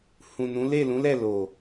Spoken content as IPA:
hũ˨ nũ˨˦le˦˨lũ˨˦lɛ˦˨ lo˨

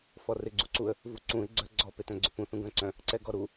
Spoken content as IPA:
fɔrɪ ɡ͡ǀuǀuə̯ | vuǀũɪ̯ ɡ͡ǀœɡ͡ǀɔ petœ̃ɡ͡ǀʏpũ θũɡœ̃ǀœ̃ | ǀɛɡɔɾu

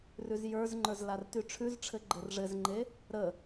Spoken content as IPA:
rʉzjə˞zŋ͡ǃə˞z lartyʈ͡ʂʰʉzʈ͡ʂʰɘ ɡ͡ǃɘrʐɘzŋ͡ǃe | ɾə

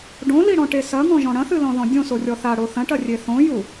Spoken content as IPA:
ɖõliɽɔ̃ʈe sɐŋɔ̃ʒɔ̃ ɽɐ̃θɨlɔ̃ðɔ̃ dʲõsorʲɔ θaɽo θɐ̃ʈɐrʲe θõju

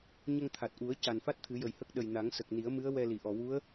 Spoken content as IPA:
ɲə˧ŋt̪ʰa˨˩t̚ʔu˨˩˦ə̯ ca˨˩nfa˦˥t̚ t̪ʰɨ˨˩˦jə˨˩jhə˦˥k̚ ɗə˨˩jna˨˩˦ŋsə˨˩k̚ni˨˩˦ə̯ mɨ˧˥ə̯ wɛ˧li˨˩˨ʔɔ˨˩˨ wu˧˥ə̯

